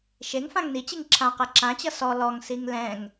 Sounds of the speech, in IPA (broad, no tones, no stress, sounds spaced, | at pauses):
ʃ e ŋ f ã ŋ n i t͡ɕ i ŋ ǁʰ ã q ɛ ǁ ã t͡ɕ ʌ s ɔ l ɔ ŋ s i ŋ l ɛ̃ ŋ